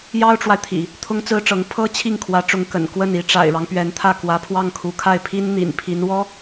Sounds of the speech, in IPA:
j ɑ˥ ʊ̯ ʈ͡ʂ w a˨ ɪ̯ t̪ʰ ḭ˨˩˦ | t̪ʰ ʊ˥ ŋ t͡s ɹ̩˥ ʈ͡ʂ ɤ˧˥ ŋ pʰ ɤ˥ t͡ɕʰ i˥˩ ŋ kʰ w ä˧˥ ʈ͡ʂ ʊ˧˥ ŋ k ə̰˨˩ n k w ə˥˩ n i˧˥ ʈ͡ʂ a̰˨˩ ɪ̯ ɻ ɑ˦ ŋ p ɥ ɛ˧˥ n t̪ʰ ä˥˩ k w ä˧˥ pʰ w ɑ˥˩ ŋ kʰ u˧˥ kʰ a˥˩ ɪ̯ pʰ i˥ n n̪ ḭ˨˩ n pʰ i˧˥ n w ɔ˥

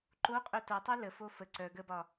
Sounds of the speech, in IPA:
ǃ o qʼ œ t o tˤ œ l ə f o f ə ǀ œ ɡ ə b ɒ

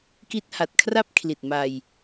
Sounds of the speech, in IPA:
k i˥˩ t̚ h a˨˩ t̚ kʰ r a˥˩ p̚ kʰ l i˨˩ t̚ m a˧ j

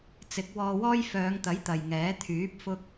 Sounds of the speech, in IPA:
t͡s ɪ˨˥ k̚ w ɔː˧ w ɔː˥ j f œː˨˧ ŋ t̪ ɐ˨˥ j t̪ ɐ˨ j ŋ ɛː˨˥ t̪ʰ yː˨˥ p̚ f ʊ˥ k̚

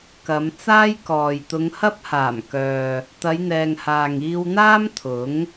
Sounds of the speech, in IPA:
k ɐ˨˧ m t͡s aː˥ j k ɔː˨ j t̪ ʊ˨˧ ŋ h ɐ˥ p̚ h aː˨˩ m k œː˨ | t̪ ɐ˨˧ j n̪ ɛː˨ ŋ h aː˨ ŋ iː˧ w n̪ aː˥ m t̪ʰ ʊ˨˥ ŋ

